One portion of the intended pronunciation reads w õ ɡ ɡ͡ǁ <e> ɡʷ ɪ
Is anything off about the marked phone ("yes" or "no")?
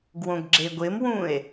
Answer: no